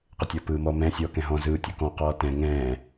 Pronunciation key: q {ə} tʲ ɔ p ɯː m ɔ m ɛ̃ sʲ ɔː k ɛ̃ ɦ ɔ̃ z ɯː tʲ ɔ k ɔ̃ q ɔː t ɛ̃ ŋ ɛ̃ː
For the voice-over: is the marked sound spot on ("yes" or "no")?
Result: yes